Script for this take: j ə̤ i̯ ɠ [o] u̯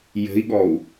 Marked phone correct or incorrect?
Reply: incorrect